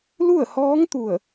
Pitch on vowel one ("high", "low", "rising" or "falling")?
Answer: falling